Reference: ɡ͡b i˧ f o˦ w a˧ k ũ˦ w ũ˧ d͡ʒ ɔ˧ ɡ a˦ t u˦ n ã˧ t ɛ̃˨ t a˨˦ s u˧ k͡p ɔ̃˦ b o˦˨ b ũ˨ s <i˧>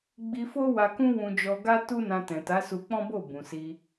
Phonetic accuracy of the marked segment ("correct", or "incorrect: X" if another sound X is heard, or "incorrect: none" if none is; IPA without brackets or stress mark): correct